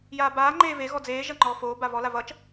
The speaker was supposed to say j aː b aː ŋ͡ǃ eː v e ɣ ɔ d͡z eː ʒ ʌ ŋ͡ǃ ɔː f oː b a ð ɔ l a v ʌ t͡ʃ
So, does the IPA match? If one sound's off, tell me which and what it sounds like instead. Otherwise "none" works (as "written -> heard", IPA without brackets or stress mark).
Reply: ð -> v